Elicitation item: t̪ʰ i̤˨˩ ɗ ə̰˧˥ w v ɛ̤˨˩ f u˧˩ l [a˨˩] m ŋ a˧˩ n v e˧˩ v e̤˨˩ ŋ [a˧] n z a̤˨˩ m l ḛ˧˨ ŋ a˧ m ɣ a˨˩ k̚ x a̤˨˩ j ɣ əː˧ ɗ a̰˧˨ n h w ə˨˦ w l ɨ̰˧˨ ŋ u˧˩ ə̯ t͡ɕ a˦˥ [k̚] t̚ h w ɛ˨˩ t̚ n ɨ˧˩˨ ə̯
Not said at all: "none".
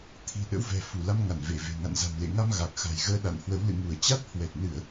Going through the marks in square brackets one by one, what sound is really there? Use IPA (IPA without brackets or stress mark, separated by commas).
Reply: a˧, a̰˧˨, none